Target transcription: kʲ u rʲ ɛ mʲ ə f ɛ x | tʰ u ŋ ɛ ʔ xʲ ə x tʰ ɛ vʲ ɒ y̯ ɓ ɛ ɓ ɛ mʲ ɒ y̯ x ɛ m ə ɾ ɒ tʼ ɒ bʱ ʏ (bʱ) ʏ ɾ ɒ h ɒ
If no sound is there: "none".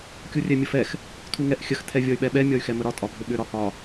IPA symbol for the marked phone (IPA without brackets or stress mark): ɓ